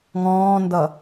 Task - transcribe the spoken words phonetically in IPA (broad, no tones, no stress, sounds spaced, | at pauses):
ŋ ɔ̃ː n d ʌ